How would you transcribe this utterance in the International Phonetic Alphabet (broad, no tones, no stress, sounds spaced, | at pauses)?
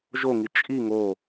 ʒ o ŋ i t͡ʃʼ i ŋ o